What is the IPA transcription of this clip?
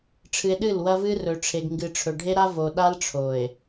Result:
ʈ͡ʂʰɨ˨e̯ ɗɨ˦˨lwɐ˦vɨ˦ rɵ˨ʈ͡ʂʰe˨ɡŋɡɨ˨ʈ͡ʂʰɵ˨ ɖʱe˦ɾa˦ vo˨ ɗa˦lʈ͡ʂʰo˨e̯

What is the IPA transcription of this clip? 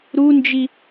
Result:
ɾund͡ʒi

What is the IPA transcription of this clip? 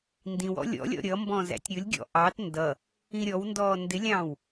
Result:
ndĩwɔ̰ lʲɔ̰lʲɔ̰ ɾʲʌmbɔ̃ zæ̰tʲɾʲʊlʲɡʲɔ̰ ʔɑt ndʌ | ĩɾʲɔwndɔː ndɪlʲɑ̃ːw

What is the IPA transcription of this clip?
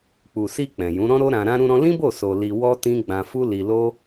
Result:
k͡pu˨si˧ k͡pɛ̃˨jũ˨˦ ɾɔ̃˦ɾo˦ ɾã˧ɾã˦ ɾũ˧ɾɔ̃˧lĩ˦bo˦˨ so˧ li˧ wɔ˦ tĩ˦ ɡ͡bã˧ fu˦li˧lo˦

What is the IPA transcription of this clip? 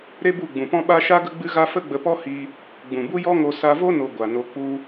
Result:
ɾe˦bu˦˨ɡ͡bũ˨pɔ̃˦ ɓa˦ ʃa˦ ɡə˦ɡ͡bɨ˦ɣa˦ fə˦ɡ͡bə˧pɔ˦ hi˧ | ɡ͡bũ˨bu˦jɔ˦ŋo˧ sa˧vo˦no˨ ɡʷa˨no˧k͡pu˦

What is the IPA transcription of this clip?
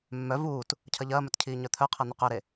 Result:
mːœ vuːt | cʰɐʎɐːmœt cʰiːɲœt̪ʰœqʰɐ n̪ʏqœɾe

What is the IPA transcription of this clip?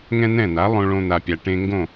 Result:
ŋɛ̃˥n̪ɛ̃˥˩n̪a˩˥ lˠõ˧ɭõ˧n̪a˩pʲa˩ ʈẽ˧ ŋɡõ˥˩

